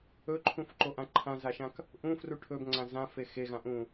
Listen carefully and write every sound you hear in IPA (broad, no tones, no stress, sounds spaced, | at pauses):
ɵ ǃʰ ũ f ǃ o ʔ ã ǃʰ ã z a ʃ ã k | ʔ ũ f r u ʈʰ ɵ b ŋ͡ǀ ã z ã f e x e ɣ ã ʔ ũ